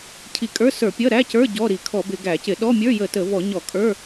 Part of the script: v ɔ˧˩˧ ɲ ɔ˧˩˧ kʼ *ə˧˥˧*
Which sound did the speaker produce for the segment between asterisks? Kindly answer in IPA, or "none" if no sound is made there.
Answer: ə˞˧˥˧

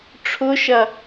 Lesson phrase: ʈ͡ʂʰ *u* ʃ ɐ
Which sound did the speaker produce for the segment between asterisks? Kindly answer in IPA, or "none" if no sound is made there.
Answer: ʊ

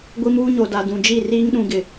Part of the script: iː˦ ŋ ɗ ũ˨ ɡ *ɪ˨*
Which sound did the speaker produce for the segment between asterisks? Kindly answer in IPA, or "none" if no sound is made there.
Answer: ɪ˨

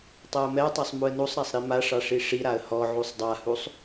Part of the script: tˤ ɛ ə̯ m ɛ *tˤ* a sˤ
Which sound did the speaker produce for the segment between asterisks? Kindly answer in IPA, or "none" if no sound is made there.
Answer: tˤ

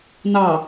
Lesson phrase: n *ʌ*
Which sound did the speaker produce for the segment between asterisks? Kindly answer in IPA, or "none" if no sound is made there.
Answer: ɑ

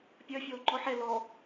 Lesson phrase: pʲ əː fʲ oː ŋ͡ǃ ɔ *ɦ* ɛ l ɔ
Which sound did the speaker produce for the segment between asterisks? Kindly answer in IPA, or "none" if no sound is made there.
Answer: ħ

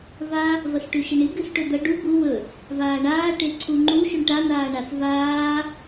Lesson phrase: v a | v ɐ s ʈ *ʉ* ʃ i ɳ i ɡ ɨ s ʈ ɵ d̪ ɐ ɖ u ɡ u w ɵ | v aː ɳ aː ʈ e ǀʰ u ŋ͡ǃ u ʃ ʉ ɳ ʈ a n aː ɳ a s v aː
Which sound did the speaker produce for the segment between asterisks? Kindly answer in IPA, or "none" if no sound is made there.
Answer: ʉ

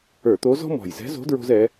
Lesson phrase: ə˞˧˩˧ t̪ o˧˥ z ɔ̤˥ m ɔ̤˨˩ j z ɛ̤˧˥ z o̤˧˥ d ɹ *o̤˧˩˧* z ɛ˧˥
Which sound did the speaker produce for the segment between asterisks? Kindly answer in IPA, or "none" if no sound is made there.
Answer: o̤˥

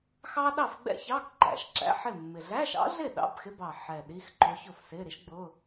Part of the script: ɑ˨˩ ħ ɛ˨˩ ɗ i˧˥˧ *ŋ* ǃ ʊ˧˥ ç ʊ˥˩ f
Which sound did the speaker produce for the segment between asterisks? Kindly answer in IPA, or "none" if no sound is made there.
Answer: x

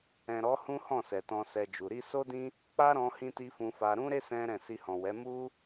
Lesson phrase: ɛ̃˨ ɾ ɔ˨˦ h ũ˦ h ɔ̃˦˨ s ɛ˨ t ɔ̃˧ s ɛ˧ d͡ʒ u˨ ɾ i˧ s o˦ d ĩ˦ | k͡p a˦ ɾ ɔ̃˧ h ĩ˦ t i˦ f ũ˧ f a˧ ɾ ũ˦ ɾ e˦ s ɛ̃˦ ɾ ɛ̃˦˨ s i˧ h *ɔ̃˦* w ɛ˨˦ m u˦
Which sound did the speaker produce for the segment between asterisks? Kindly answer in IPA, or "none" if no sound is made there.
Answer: ɔ̃˨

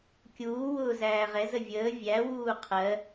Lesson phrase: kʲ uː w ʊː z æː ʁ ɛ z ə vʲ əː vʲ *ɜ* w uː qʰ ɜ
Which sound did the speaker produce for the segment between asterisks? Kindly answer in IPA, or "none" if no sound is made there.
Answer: æ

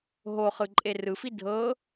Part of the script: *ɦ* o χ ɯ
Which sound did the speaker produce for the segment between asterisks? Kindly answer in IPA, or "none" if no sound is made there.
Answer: ɦ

